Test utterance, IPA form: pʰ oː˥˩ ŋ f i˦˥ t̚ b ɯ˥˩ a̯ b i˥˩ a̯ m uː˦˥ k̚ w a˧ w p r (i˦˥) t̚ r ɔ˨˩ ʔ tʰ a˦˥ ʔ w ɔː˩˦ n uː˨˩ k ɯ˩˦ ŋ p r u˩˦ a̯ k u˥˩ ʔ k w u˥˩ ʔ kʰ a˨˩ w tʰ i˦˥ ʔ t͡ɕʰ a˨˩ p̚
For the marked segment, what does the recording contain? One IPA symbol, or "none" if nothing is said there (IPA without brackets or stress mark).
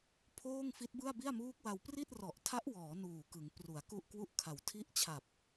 i˥˩